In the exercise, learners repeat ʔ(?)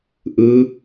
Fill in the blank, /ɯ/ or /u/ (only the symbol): ɯ